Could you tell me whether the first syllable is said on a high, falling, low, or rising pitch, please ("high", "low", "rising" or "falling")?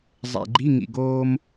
low